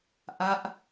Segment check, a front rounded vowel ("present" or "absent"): absent